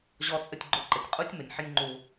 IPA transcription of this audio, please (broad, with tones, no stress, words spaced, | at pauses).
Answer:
ʑɔ˧t͡sʼə˧tʲɡ͡ǃʊ˧ ǃə˩tʲqʼu˥tʲ mə˩nʲħə˥nʲŋ͡ǃu˧